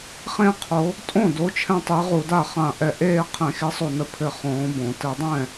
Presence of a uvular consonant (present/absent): present